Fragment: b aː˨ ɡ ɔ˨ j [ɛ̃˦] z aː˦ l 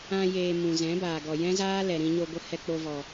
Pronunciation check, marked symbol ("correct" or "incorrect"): correct